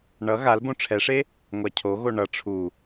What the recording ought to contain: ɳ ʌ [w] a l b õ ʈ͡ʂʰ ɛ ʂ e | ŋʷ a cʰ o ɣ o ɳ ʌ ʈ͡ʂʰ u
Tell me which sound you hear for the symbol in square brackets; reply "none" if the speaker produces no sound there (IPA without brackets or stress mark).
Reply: ɣ